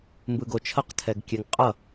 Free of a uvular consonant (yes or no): no